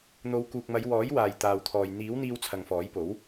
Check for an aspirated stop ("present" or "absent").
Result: present